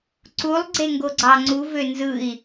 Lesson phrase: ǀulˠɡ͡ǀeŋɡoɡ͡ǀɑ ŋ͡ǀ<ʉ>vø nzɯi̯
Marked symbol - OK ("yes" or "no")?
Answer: no